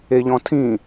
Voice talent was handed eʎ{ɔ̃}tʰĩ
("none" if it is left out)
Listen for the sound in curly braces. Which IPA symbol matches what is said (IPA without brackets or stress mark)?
ɔ̃